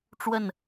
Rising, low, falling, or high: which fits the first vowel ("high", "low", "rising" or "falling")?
falling